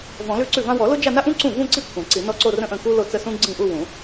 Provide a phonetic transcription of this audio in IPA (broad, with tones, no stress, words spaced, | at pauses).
vɔ̃˨˩˦lʉ˥˧ǀʉ˥˩vã˥ wɔ˨˩˦lo˥d͡ʒa˥˧na˥ ʔũ˥ǀũ˥˩vũ˥˧ǀi˥˩ kʷʰã˨˩˦ǀi˨˩˦ nɔ˥˩ǀo˥˧rə̃˥˧ʔə̃˥˩ ku˥lo˥˧t͡sə˥˧sũ˥ ɡ͡ǀĩ˥˩ʔu˥˧ wũ˨˩˦